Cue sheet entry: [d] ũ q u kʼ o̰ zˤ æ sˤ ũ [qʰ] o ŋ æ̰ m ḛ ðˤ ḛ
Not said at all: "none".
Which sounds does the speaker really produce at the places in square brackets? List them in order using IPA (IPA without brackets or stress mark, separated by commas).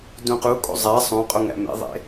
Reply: d, qʼ